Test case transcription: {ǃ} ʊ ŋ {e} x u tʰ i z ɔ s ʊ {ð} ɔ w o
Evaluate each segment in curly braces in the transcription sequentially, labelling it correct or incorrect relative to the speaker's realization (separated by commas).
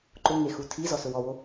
correct, correct, incorrect